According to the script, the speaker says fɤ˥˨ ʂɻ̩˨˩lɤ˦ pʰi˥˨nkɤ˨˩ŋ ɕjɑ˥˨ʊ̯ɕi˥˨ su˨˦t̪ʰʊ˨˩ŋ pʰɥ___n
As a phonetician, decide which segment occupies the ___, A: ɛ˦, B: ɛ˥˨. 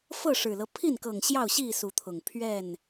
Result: B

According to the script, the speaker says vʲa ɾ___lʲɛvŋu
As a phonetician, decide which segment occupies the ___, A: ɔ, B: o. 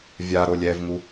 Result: B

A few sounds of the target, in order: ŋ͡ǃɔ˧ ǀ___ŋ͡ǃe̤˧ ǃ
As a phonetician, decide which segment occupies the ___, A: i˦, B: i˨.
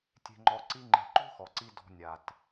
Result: A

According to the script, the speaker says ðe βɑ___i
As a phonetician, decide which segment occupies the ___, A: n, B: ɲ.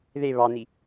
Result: A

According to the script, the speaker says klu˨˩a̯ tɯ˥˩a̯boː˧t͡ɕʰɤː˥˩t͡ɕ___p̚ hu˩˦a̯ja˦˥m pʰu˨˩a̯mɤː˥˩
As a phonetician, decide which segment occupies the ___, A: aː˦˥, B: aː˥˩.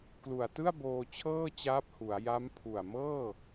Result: A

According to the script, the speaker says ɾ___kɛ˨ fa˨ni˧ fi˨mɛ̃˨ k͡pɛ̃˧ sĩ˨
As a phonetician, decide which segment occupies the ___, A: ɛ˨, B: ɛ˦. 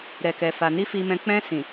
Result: A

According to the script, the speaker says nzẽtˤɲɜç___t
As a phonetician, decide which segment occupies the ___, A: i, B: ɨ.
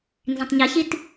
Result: A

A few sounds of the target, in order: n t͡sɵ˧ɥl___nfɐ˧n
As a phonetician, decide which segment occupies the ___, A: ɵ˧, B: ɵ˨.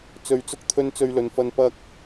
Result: B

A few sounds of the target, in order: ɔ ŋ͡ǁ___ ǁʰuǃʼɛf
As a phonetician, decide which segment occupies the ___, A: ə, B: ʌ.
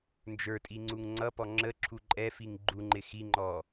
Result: A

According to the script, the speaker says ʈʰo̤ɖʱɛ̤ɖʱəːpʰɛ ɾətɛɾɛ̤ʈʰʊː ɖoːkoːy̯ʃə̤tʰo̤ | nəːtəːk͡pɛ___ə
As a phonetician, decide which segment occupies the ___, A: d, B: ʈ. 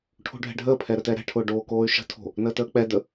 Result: A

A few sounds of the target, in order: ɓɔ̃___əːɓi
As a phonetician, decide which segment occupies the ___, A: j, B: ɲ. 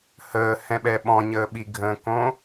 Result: B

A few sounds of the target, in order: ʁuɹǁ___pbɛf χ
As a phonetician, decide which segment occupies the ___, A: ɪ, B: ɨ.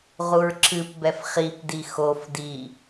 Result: B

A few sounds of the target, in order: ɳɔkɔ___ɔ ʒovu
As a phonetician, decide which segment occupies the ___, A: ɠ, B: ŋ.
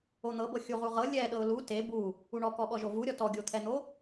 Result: A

